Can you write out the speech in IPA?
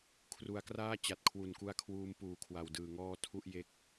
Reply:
kʰ r u˩˦ a̯ k r aː˥˩ t͡ɕ a˨˩ t̚ kʰ w u˨˩ n k u˧ a̯ kʰ w uː˧ m p uː˨˩ kʰ w a˨˩ w d ɯː˨˩ ŋ ɔː˦˥ tʰ u˥˩ ʔ j e˦˥ k̚

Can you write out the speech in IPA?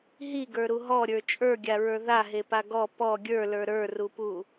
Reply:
ɦ i ɡ ə˞ ɾ u ɦ ɔ ɾʲ ə˞ t͡ʃʼ ə˞ ɡʲ a ɹ ə˞ ð a ɦ e p a ɡ ɔ p ɔ ɡʲ ə˞ l ə˞ ɾ ə˞ r u p u

